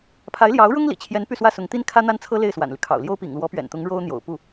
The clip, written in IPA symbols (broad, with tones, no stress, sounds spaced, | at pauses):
pʰ a˧˥ ɪ̯ l j ɑ˧˥ ʊ̯ ɻ ʊ˥ ŋ l ḭ˨˩ t͡ɕʰ j ɛ˧˥ n p y˥˧ s w ä˥˩ s ʊ˧˥ ŋ t̪ i˥ n kʰ ä˥ n̪ a˥ n t͡sʰ ɤ˥ l e˥˩ ɪ̯ s w a̰˨˩ n l y˦ kʰ ɑ̰˨˩ ʊ̯ l j o˥ ʊ̯ p ḭ˨˩ ŋ l w ɔ˧˥ p ɥ ɛ̰˨˩ n t̪ ʊ˧˥ ŋ ɻ o˥ ʊ̯ n̪ j o̰˨˩ ʊ̯ p u˥˩